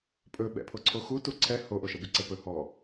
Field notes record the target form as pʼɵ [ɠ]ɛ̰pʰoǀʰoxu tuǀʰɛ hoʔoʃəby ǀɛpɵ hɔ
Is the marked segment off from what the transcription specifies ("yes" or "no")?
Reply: yes